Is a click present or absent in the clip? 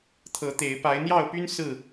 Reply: absent